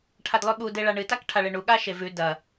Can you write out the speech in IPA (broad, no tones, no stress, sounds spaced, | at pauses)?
ʈʰ a d lˠ ʉ ɠ u d e ɭ a ɳ ɨ t a k ʈʰ a ɭ e ɳ u ɠ a ʃ e v ʉ d ɐ